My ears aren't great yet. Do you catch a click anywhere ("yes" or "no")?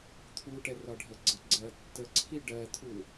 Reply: yes